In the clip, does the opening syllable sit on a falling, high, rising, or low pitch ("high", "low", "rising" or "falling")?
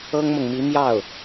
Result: high